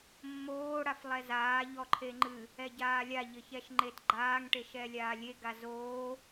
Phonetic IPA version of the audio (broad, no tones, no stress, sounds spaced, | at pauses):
mː oː ɽ a f lˠ ɛ z aː ʎ ɔ ǃʰ e ŋ͡ǃ ɨ | ɛ ɟ aː lʲ a ʎ ɘ ç ɛ ʃ ŋ͡ǃ e t ɡ͡ǃ aː ŋ ʈ e ʃ ɛ lʲ aː lʲ e ɡ a z oː